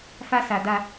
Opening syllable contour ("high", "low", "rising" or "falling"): high